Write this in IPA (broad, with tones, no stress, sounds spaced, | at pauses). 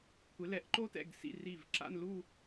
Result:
kʷʰ ɪ˩˧ l ɛ˩˧ ʔ ǃ o˧ t ɛ̰˧˩ ɡ s ḭ˧˩ r i˧˩ v ǁ a̰˥˧ n l u˥˧